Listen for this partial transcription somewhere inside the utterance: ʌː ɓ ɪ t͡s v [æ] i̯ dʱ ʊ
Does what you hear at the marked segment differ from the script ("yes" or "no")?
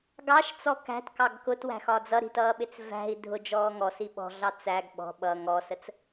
yes